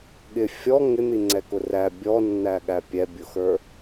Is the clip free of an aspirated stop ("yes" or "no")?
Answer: yes